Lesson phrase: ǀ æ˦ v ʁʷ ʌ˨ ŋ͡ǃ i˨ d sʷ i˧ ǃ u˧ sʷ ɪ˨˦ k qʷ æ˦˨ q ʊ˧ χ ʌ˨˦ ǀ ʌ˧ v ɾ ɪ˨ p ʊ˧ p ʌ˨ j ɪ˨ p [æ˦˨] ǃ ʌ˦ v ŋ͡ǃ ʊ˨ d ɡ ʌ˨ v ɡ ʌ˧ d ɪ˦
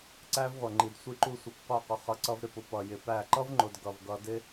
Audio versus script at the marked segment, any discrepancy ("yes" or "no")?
no